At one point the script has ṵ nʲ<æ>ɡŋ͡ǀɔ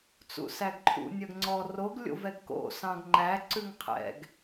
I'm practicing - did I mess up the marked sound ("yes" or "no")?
yes